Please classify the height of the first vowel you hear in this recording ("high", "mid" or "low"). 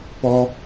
mid